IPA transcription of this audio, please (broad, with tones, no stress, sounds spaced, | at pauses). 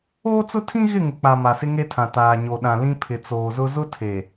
oː˦ t͡s ʊ˦ tʰ ĩ˦ ɣ ɪ˦˨ ŋ ɪ˨ k͡p a˨ m a˨ s ɪ˦ ŋ e˦ tʰ ã˨ t aː˨ ɲ o˨ ɗ ã˨ l ĩ˦ pʰ ɪ˨ t͡s oː˨ z ʊ˦ z ʊ˦ tʰ e˨